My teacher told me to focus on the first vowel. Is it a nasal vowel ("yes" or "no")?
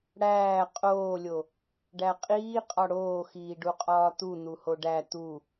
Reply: no